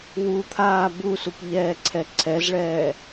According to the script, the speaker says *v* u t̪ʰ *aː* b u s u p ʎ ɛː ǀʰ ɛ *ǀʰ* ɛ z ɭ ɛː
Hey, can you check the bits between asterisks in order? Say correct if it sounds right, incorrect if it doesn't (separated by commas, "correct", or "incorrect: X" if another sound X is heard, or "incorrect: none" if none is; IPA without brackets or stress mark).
incorrect: w, correct, correct